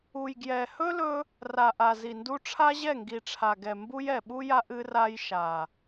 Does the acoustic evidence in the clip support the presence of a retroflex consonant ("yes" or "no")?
yes